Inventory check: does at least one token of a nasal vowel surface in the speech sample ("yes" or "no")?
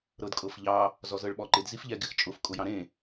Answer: yes